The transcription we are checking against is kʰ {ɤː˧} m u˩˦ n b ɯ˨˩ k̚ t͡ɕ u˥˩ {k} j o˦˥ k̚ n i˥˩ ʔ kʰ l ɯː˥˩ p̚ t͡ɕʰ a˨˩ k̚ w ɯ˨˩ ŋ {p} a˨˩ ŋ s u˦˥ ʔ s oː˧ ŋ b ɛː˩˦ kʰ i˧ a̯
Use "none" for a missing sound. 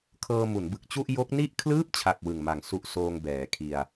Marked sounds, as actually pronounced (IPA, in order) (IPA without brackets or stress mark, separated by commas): ɤː˧, ʔ, m